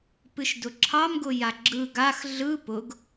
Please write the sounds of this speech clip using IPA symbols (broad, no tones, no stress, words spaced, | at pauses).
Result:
pɨʃdʊǁʰɑmɡʊ jaɡ͡ǁɯ ɡax ɮɯ pʊɡ